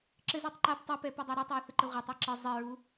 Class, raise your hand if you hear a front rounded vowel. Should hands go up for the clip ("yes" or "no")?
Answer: no